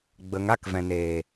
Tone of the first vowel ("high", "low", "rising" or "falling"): rising